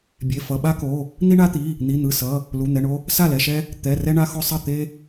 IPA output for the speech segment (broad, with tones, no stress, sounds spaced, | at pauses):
bʲ e˩˧˩ f ʌ˩˧˩ ɓ a˦ k o˩˧˩ | n̪ i˦ ɳ a˦ t̪ i˩˧˩ | n̪ i˩˧˩ n̪ ɯ˩˧˩ s ʌ˩˧˩ | l u˩˧˩ n̪ ɛ˩˧˩ ɳ o˦ | s a˥˩ l ɛ˩˧˩ ʃ ɛ˦ | t̪ ɛ˩˧˩ r ɛ˦ ɳ a˦ x o˦ sˤ ʌ˥˩ t̪ e˦